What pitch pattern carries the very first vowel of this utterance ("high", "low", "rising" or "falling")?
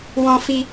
high